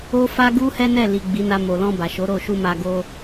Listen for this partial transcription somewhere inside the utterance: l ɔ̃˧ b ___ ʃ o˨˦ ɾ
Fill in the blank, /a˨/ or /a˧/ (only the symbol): a˨